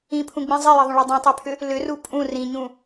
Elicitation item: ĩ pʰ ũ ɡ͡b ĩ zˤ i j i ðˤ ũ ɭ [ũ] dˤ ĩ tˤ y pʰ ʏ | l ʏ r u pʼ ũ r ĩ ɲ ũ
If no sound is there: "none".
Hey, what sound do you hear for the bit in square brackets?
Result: u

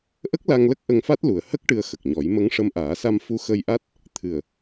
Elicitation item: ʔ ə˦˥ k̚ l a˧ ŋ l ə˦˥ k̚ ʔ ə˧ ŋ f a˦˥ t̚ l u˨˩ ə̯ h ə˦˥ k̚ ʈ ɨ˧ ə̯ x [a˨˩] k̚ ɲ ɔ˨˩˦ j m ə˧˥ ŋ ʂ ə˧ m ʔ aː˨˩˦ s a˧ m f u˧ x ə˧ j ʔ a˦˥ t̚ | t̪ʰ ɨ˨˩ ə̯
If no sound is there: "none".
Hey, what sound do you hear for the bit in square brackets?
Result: ə˨˩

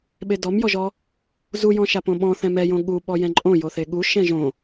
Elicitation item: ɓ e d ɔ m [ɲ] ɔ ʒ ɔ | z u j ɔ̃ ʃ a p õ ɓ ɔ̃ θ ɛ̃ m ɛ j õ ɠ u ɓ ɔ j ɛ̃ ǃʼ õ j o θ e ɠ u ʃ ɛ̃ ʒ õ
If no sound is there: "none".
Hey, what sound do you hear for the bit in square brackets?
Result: j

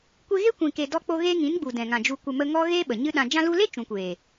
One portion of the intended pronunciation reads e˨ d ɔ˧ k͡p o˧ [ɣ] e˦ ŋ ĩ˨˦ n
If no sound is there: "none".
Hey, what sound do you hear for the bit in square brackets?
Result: ɣ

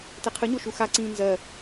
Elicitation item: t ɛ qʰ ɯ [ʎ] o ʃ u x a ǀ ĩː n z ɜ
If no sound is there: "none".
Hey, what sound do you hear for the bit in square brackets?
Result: ɲ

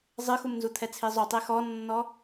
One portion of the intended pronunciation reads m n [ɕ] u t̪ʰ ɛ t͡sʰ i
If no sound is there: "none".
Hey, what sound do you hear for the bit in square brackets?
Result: z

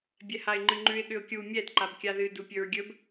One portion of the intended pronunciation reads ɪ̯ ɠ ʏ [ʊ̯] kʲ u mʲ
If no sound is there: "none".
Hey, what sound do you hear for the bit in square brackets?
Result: ʊ̯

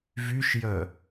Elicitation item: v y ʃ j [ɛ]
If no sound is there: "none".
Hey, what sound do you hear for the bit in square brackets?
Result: œ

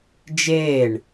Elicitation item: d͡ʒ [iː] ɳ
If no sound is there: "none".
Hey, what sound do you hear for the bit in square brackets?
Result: eː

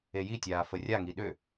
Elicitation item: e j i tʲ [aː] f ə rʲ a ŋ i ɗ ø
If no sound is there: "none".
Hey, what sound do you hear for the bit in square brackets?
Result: aː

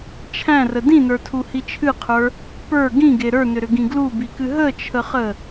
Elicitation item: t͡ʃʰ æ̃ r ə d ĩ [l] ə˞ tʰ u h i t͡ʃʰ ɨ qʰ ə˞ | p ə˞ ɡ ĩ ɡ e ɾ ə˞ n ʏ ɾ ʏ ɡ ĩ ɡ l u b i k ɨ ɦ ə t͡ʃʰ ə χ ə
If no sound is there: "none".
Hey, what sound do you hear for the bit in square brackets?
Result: n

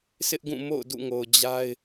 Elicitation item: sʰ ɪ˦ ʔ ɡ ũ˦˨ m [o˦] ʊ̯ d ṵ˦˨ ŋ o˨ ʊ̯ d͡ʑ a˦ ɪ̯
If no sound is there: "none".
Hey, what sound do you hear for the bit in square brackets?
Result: o̰˦˨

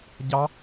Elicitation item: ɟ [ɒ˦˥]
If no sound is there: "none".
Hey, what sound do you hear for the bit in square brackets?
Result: ɑ˦˥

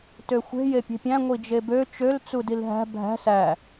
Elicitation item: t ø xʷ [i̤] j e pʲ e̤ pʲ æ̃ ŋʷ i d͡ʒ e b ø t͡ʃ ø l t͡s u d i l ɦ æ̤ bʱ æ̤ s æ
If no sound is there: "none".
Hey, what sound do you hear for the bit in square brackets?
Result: e̤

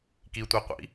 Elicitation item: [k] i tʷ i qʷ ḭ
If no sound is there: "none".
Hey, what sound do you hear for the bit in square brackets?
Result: k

